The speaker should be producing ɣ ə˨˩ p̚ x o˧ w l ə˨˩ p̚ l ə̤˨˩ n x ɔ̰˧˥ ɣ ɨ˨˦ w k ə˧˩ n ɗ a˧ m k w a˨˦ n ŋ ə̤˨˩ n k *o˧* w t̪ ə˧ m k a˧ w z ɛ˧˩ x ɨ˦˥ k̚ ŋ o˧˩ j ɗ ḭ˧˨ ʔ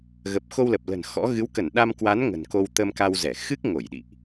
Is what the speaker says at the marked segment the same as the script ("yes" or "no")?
yes